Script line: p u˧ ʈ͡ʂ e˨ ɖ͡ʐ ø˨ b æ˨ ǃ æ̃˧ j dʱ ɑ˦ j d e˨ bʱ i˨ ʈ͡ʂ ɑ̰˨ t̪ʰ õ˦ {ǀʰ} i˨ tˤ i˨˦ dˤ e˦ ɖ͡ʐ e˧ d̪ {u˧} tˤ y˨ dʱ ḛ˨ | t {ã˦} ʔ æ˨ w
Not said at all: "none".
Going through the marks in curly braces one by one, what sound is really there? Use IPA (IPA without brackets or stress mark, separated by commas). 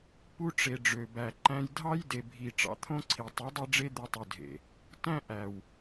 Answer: ǀʰ, u˧, æ̃˦